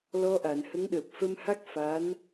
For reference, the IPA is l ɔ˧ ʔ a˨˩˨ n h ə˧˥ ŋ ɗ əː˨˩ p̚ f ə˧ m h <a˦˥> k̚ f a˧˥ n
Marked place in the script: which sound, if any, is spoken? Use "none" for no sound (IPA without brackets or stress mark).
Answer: a˦˥